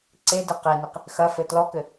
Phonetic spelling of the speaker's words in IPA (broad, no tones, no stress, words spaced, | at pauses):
ǀedɘ qeniq | xɐfɘ tlɔkɘ